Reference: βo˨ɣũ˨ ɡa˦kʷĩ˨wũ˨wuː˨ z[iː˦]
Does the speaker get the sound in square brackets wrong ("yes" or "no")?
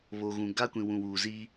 yes